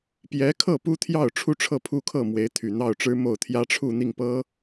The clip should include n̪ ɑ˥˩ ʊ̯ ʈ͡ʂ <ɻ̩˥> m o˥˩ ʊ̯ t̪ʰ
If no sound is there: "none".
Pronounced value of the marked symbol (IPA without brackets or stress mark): ɻ̩˥